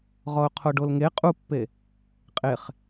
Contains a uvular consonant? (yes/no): yes